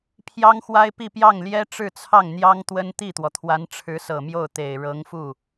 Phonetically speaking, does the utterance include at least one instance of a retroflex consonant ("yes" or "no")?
yes